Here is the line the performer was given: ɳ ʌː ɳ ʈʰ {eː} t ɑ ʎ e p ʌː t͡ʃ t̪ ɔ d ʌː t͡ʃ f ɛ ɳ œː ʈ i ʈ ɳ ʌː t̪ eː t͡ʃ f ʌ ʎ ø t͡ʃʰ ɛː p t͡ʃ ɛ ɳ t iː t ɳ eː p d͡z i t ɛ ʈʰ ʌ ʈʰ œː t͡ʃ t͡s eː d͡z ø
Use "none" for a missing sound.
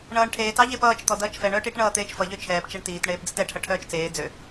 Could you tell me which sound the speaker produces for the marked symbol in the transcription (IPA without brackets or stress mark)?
eː